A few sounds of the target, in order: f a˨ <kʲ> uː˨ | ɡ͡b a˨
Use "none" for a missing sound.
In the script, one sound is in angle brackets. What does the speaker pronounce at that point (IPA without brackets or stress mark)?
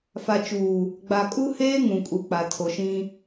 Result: t͡ʃ